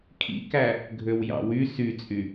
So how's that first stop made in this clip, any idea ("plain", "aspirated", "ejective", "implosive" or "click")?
aspirated